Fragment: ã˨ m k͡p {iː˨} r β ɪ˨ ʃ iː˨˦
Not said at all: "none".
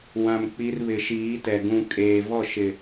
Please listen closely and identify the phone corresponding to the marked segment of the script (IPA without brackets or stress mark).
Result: i˨